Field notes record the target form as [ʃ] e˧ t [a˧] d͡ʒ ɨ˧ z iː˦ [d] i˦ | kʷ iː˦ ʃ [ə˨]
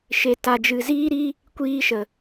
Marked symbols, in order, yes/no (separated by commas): yes, yes, no, yes